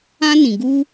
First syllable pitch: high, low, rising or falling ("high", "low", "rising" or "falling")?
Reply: high